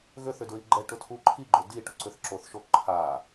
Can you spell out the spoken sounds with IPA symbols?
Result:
ɣ ø θ ʏ d ɹ i ɡ͡ǃ ɛ ʈ ʊ tʰ u ǃʰ i ɡ͡ǃ ʊ d i ʈ ʊ ǀ ʏ θ ǁ o θ ʃ o ǃʰ a

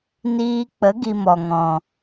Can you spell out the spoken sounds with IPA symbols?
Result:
n iː˧ k͡p ə˨˦ ɡ i˧ m ɔ˨ ŋ ɔ̃˨

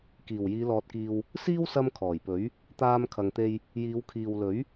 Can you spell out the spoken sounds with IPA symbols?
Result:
k iː˨˩ w j iː˨˧ l ɔː˨ t̚ k iː˨ w | s iː˥ w s ɐ˧ m kʰ ɔː˨˩ j p ɵ˨˥ ɥ | t̪ aː˧ m kʰ ɐ˨ ŋ t̪ e˧ j | j iː˨˧ w kʰ iː˨ w l ɵ˨˥ ɥ

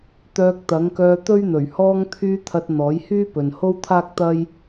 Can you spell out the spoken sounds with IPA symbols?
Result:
t̪ œː˧ k̚ t̪ ɐ˨˥ ŋ k œː˧ t̪ ɵ˥ ɥ n̪ ɵ˨˩ ɥ h ɔː˧ ŋ t̪ʰ yː˧ t̪ʰ ɐ˧ t̚ n̪ ɔː˨˥ j h yː˥ p ɵ˨ n h o˥ w t̪ʰ aː˥ k̚ t̪ ɐ˥ j

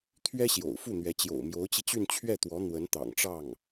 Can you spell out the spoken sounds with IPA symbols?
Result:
t̪ʰ ɥ ɛ˥ ɕ j o̰˨˩ ʊ̯ f u˥˩ n̪ ɥ ɛ˧˥ t͡ɕ j o̰˨˩ ʊ̯ m j o˧˥ ʊ̯ t͡ɕ i˧ t͡ɕ y˥˧ n t͡ɕʰ ɥ ɛ˥˩ t̪ w ɔ˧˥ n̪ w ə˧˥ n t̪ ɑ̰˨˩ ŋ ʈ͡ʂ ɑ˥˩ ŋ

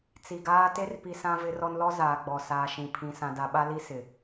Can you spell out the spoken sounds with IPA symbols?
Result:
t͡s i˨ ɡ aː˦ t e˦ r p i˨ s ã˦ v ɪ˦ r ɔ˦ n l ɔ˦ z aː˨ ɡ͡b ɔ˨ s aː˨ ʃ ĩ˨ pʰ ĩ˨ s ã˨ d a˨ ɓ a˦ l i˦ s ɪ˨

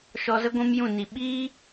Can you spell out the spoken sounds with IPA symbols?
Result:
ʃ ɔ˧ z ə˦ ɡʷ ũ˦ m j ũ˦˨ n i˨ ɓ iː˦

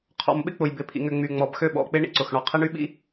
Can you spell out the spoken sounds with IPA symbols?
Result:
qʰ ɔ̰˨ m ɓ ɪ˦ k͡p ʊ˨ j b ɪ˨ pʰ ḭ˨ ŋ ʏ˨ ŋ͡m y˨ ŋ͡m ɔ˨ b x ø˦˨ ɓ ɔ̰˨ k͡p ɪ˦ ɳ ḭ˦ ǀ ʊ˨ x ɳ ɔ˨ qʰ e˦ ɳ y˦ ɓ ḭ˦

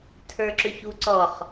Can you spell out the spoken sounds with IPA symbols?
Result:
tʰ ə˞ ǁ ʏ ç u ǀ ɔ χ

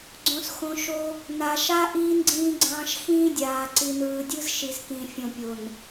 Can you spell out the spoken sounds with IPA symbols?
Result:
ɡ͡ǀ õ˨ s x õ˨ ʃ o˦ | n a˨ ʃ a˦ ʔ iː˦ n ɡ͡ǀ ĩː˦ ɡ͡ǀ ɑ̃ː˦ ʃ x ĩː˦ dʲ aː˨ ǀ i˨ n ɯː˨ dʲ ɯ˦ z ʃ i˨ z k ĩ˨ fʲ õ˨ pʲ o˨ n

